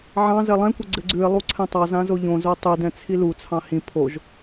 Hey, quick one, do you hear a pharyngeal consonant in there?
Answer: yes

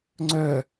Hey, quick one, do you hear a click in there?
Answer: yes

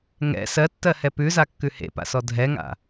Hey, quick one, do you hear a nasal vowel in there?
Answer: no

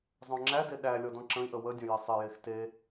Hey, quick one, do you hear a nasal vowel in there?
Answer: yes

